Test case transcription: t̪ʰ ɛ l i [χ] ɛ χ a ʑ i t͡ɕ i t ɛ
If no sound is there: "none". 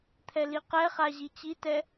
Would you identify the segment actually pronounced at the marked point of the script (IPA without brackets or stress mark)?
q